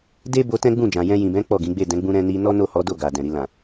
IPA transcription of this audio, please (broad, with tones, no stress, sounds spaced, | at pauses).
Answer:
d e˦ b o˧ t ɛ̃˦ ɡ͡b ũ˦˨ d͡ʒ ã˨ j ɛ̃˧ j ĩ˨ b ɛ̃˨˦ k͡p ɔ˦˨ ɡ ĩ˨˦ ɡ͡b e˦˨ d ɛ̃˨˦ ɡ͡b ũ˧ ɾ ɛ̃˧ n i˧ n ɔ˦ n o˦˨ h ɔ˨˦ d o˦˨ ɡ a˨ d ɛ̃˨ ɾ i˧ l ã˨